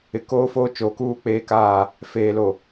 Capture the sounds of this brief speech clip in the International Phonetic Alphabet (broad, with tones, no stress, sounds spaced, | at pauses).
ɪ˨ k oː˦ f oː˦ t͡ʃ oː˨ k uː˦ k͡p eː˦ k aː˦˨ | f eː˨ l o˨